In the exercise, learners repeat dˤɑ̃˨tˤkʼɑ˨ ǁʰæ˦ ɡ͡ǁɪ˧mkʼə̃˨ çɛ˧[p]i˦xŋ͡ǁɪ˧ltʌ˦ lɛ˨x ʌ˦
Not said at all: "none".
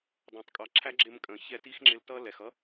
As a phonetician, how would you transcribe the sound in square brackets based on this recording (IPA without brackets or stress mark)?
t